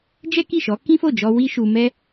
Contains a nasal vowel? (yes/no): yes